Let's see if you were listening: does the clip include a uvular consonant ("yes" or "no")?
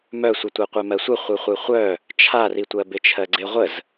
yes